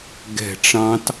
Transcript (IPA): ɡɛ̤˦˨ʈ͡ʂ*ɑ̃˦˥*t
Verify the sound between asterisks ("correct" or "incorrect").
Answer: correct